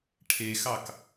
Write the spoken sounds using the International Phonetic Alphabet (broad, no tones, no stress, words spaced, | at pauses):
ʈʰexɑk